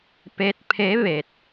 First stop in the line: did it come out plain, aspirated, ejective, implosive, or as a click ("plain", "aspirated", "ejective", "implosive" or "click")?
plain